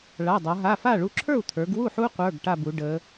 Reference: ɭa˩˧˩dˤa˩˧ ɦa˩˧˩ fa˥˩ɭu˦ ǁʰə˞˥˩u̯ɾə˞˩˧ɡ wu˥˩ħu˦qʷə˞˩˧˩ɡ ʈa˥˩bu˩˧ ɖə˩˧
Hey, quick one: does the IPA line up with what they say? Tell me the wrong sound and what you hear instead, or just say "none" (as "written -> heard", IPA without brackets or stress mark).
ɾ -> t̪ʰ